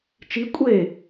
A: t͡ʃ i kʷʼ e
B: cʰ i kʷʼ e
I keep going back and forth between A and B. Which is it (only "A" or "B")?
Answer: A